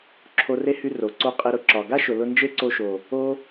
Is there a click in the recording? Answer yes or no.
yes